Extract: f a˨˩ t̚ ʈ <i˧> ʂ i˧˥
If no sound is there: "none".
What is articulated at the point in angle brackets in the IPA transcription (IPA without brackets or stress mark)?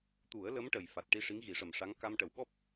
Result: i˧